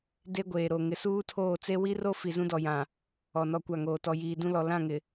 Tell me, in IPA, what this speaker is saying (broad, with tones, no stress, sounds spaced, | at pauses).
d e˦ ɡʷ eː˨ ɾ o˨ ŋ ɪ˨ s uː˦ tʰ oː˦˨ t͡s e˦ w i˦ r o˦ f i˨ z ũ˦ d ɔ˨ j ã˨ | ɔ˨ n ɔ˦˨ kʷ a˦˨ ŋ oː˨ t ɔ˨ j iː˨ d ũ˦ l ɔ˨ l ã˦˨ ŋ ɪ˨